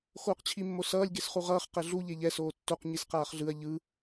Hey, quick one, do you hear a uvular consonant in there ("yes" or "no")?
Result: yes